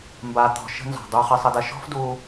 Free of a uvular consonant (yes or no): no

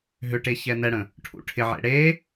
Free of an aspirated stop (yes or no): no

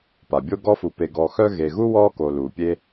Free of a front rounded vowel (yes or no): no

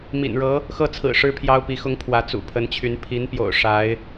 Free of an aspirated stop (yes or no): no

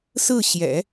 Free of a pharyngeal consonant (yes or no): yes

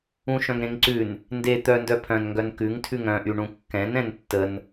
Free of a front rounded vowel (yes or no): no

